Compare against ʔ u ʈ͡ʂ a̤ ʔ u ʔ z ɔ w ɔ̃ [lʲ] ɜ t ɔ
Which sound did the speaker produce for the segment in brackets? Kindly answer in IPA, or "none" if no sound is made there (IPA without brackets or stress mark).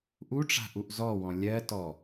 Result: lʲ